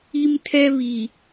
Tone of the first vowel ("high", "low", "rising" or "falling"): high